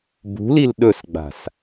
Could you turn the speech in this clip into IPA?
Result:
b ṳ l i l ɗ ɵ s ɡ͡b a̤ s

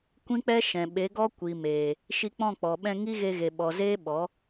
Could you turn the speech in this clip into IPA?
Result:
kʷ ĩ˦ k͡p ɛ˦ ʃ ɛ̃˨ ɓ e˨˦ ɡ ɔ˦ kʷ i˨ m eː˨ | ʃ i˧ k͡p ɔ̃˦˨ k͡p ɔ˨ ɓ ɛ̃˧ ŋ i˦ ɣ e˧ ɣ e˨ ɓ ɔ˨ z eː˦ ɓ ɔ˨˦

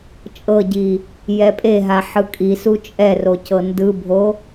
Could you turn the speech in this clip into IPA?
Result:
t͡ʃʼ ɤ ɟ i | j ɛ pʼ e ɦ a ħ ɯ kʼ i s u t͡ʃʼ ɛ r o c ɤ n d ɯ bʱ o

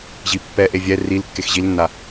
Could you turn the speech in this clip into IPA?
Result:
ʑ i pː ɛ ʔ e vʲ ɛ r i l kː e x ʑ i l nː a

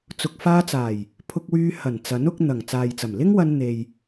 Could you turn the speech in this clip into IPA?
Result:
t͡s ʊ˨ k̚ f aː˧ t͡s aː˨˩ j | pʰ ʊ˧ k̚ w yː˧ h ɐ˨˩ n t͡s ɐ˨˥ n ʊ˨˥ k̚ n̪ ɐ˨˩ ŋ t͡s aː˨ j t͡s ɐ˨˩ m l ɪ˥ ŋ w ɐ˧ n n̪ e˨ j

